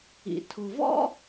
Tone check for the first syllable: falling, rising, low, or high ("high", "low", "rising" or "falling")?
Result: low